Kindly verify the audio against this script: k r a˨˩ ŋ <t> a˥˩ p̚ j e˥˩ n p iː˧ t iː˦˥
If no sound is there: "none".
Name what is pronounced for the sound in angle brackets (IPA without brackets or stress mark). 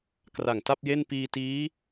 t